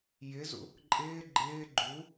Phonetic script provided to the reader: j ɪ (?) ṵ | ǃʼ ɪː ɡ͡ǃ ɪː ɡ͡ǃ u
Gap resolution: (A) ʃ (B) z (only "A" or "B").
B